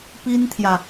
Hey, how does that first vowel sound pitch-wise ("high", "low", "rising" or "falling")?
high